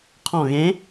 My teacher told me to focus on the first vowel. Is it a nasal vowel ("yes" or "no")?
yes